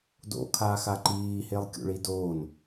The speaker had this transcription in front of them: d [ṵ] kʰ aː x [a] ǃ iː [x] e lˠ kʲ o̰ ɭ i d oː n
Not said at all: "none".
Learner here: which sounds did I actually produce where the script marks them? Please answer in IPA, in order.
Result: o̰, a, h

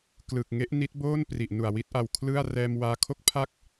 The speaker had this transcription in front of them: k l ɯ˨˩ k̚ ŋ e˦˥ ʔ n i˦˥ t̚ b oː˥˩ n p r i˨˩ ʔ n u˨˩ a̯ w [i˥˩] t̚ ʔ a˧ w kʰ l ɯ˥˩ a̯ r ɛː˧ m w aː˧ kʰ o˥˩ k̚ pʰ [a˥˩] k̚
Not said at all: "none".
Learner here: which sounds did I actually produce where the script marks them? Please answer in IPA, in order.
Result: i˥˩, a˥˩

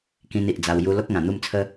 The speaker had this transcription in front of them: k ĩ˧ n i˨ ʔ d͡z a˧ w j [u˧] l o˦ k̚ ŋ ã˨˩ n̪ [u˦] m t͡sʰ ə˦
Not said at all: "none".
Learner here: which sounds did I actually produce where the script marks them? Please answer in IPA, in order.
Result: u˧, u˥˧

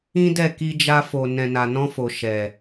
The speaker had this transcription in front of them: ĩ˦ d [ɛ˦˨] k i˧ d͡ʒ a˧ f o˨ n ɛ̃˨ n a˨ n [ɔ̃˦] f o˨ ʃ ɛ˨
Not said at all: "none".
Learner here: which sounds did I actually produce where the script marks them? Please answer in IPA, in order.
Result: ɛ˦˨, ɔ̃˧

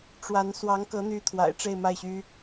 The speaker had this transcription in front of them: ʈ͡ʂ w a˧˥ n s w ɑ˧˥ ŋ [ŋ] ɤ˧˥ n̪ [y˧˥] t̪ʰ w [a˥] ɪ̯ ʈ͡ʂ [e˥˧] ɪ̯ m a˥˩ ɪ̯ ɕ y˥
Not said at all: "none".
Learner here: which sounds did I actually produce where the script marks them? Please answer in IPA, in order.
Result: k, y˧˥, a̰˨˩, e˥˧

